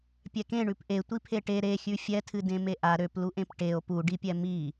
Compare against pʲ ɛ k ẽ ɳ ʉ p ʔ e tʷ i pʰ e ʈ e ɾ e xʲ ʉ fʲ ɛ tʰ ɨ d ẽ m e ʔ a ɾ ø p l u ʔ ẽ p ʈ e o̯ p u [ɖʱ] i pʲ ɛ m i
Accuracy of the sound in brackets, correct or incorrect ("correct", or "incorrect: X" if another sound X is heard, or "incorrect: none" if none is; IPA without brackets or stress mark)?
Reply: incorrect: ɖ